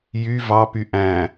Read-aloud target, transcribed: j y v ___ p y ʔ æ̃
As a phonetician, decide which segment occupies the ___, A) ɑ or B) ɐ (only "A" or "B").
A